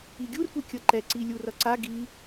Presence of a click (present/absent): present